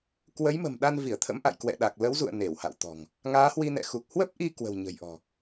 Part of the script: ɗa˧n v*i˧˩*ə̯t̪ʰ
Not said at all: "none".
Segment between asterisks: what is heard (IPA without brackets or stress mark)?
i˧˩